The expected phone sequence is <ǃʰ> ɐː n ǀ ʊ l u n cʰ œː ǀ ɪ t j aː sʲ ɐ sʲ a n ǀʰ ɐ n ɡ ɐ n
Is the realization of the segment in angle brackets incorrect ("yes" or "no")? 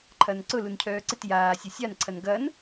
no